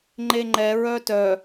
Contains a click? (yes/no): yes